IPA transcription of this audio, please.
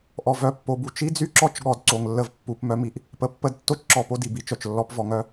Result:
ʔ ɔ˨ v œ˨ pː o˨ b u˨ t͡ʃ i˦ d͡z y˦ ǁ ɔ˦˨ t͡ʃ ɠ ɔ˨ d ǀ o˨ ŋ lː ə˦ v pː u˨˦ p m œ˦ m i˨ ʔ | p ə˨ pː ə˦ d tː o˦ t͡ʃ ǁ ɔ˨ p o˦ d i˨ b i˦ t͡ʃ œ˨ t͡ʃ lː ɔ˦ p v ɔ˨ ŋ œ˦

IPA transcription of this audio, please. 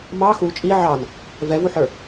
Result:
m ɑ x u t͡ʃʼ i ʕ ɑ n | v ɛ v u ħ ə˞

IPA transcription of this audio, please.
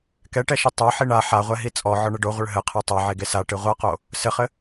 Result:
k ɛ ʈ ɛ ʃ ɨ tˤ a ħ i ɳ a ħ a ʁʷ ɛ ɦ i t͡sʼ ɔ ʕ ɔ ɳ ɘ ɖ o ʁʷ ɘ ɭ ɦ ɘ qʰ ɛ tˤ a ʕ e ɡ e s a ʈ ɨ ʁʷ a q o | s ɘ χ ɘ

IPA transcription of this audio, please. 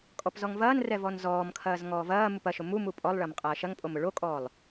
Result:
kʼ ɔ p z ɔ ŋ v ɐː n r ɛ v ɔ n z ɔː m kʰ ɐː z ŋ ɔː v ɐː m u p ɐ ʃ ʊ m u m u pʼ ɔ lˠ ɭ ɐ m qʼ ɐː ʃ ɐ ŋ pʼ o m ʊ ɭ o kʼ ɔː lˠ

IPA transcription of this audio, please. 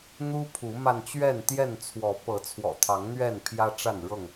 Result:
n̪ u˦ pʰ u˨˦ m a˧ n t͡ɕ ɥ ɛ˥˨ n t̪ j ɛ˥˨ n t͡sʰ w ɔ˨˦ p ɤ˨˦ t͡sʰ w ɔ̰˨˩ t̪ʰ ɑ˨˦ ŋ n̪ ɥ ɛ˥˨ n pʰ j ä˦ ʈ͡ʂ a˥˨ n ɻ ɤ˥˨ ŋ

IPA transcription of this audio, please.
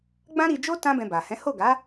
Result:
ɡ͡b ã˦ ɾ i˧ d͡ʒ o˦ t ã˦ b ɛ̃˧ b a˨ h ɛ̃˨˦ h o˦˨ ɡ a˨˦

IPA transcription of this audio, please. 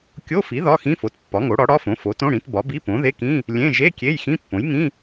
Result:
kʲ o˧˥˧ f i˩˥ ð ɒ˧˥˧ x ĩ˧˥˧ f o˩˥ t pː ɒ˩˥ ŋ o˩˥ ɽ ɒ˩˥ ɽ ɒ˧˥˧ f õ˩˥ f o˩˥ t õ˧˥˧ ɽ ĩ˩˥ t b ɒ˩˥ b i˧˥˧ p õ˩˥ ð e˧˥˧ k ĩ˧˥˧ | lʲ ẽ˧˥˧ ʒ e˧˥˧ kʲ e˧˥˧ j x ĩ˧˥˧ pː õ˩˥ j ŋ ĩ˧˥˧

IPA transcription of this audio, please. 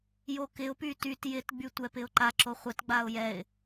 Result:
j o k ɪ ʊ̯ p y t y t j ɪ t ɡ͡b y tʷ ɛ p ɪ ʊ̯ ǃ a ǁ o χʷ ɪ t ɡ͡b a ʊ̯ j ɛ ɪ̯

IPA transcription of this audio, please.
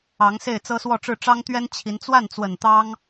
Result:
ɑ˧˥ ŋ s e˥˩ ɪ̯ t͡s ɤ˥ s w ɔ˥˧ ʈ͡ʂ ɻ̩˥˩ ʈ͡ʂ ɑ˥ ŋ t̪ ɥ ɛ˥ n t͡ɕʰ i˧˥ n t͡s w a˥˩ n t͡s w ə˨˩ n t̪ ɑ˥ ŋ

